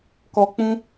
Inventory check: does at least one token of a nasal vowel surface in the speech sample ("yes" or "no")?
yes